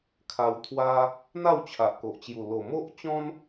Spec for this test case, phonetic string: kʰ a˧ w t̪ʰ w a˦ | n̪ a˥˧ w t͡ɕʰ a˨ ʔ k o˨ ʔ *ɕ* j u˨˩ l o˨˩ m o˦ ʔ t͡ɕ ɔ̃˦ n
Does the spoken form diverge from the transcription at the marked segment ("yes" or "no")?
yes